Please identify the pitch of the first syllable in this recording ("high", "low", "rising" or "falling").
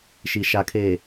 low